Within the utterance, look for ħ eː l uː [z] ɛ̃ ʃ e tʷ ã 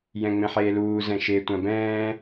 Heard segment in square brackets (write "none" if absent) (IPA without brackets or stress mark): z